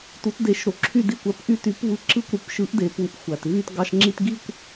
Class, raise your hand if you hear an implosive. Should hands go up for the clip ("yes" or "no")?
no